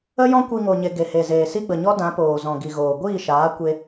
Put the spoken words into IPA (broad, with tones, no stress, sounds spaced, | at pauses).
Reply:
ə˦ j ɔ̃˦ kʷ i˧ ŋ o˨ ɲ e˨ ɡ e˨ h e˨ z eː˨ s i˦ ɡ͡b ə˨ ɲ ɔ˦ d ã˨˦ p oː˨ z ɔ̃˨ ɡ i˨ ɣ oː˨ ɡʷ iː˦˨ ʃ aː˨˦ kʷ e˦